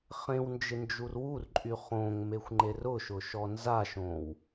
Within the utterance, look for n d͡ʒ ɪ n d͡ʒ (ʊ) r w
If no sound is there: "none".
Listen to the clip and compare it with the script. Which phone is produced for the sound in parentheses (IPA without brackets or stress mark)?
u